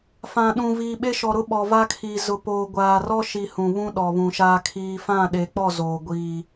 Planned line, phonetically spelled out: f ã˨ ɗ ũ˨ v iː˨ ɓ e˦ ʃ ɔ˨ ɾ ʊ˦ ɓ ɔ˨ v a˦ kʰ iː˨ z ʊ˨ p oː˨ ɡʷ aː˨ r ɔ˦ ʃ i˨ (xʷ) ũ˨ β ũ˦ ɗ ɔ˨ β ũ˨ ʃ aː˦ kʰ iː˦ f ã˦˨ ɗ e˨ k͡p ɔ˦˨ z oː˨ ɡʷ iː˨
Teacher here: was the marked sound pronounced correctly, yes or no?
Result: no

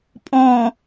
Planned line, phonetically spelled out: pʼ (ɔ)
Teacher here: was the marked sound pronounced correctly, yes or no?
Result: no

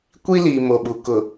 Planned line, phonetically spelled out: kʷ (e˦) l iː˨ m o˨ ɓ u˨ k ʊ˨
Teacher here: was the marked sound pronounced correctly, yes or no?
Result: no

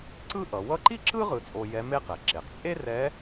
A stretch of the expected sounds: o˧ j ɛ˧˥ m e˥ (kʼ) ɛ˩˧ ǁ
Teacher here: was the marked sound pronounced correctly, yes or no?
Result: no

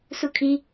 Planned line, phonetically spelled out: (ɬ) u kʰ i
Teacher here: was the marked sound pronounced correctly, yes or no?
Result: no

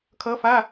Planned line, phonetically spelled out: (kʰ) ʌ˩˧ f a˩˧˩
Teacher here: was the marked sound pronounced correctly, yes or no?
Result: yes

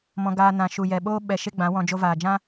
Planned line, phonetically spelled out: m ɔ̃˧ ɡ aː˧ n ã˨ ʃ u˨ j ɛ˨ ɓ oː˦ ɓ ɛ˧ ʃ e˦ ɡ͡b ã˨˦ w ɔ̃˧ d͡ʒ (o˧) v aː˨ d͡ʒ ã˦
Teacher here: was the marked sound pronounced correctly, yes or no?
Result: yes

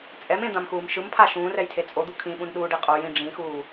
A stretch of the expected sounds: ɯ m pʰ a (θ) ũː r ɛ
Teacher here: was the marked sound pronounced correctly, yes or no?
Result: no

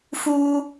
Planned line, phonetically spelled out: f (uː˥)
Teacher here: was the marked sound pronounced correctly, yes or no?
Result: yes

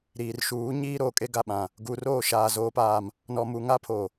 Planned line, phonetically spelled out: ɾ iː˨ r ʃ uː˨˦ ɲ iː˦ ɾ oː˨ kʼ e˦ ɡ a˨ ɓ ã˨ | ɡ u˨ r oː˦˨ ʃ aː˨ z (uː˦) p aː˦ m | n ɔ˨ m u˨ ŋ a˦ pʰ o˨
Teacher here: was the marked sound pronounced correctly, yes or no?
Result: no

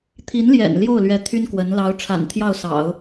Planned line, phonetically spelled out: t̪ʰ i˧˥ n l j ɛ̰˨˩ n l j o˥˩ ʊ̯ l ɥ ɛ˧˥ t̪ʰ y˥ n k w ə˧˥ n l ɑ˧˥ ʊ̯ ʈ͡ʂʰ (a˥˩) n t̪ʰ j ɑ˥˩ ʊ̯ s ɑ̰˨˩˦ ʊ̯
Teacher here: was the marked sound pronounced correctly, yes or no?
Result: no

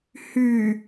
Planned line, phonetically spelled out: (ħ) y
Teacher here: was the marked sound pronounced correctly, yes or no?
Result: no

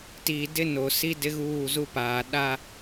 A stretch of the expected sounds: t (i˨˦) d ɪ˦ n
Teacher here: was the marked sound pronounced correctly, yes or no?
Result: no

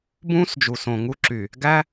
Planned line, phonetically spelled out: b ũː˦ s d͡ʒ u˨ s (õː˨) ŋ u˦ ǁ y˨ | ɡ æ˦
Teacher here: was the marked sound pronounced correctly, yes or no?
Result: no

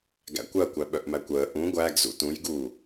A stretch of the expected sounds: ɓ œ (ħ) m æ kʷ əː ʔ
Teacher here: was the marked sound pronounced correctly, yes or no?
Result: no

